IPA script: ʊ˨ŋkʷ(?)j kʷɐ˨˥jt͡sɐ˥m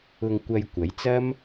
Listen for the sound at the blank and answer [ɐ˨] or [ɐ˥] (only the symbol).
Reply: ɐ˨